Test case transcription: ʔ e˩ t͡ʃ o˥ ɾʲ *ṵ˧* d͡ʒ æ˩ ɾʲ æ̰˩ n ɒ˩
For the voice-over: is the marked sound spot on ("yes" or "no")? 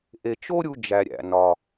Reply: no